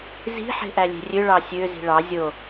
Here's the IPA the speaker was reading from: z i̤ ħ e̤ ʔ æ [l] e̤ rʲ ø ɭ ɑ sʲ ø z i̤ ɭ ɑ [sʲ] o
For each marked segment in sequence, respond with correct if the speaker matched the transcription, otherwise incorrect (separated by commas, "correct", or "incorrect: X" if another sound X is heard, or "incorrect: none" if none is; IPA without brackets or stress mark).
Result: incorrect: lʲ, incorrect: zʲ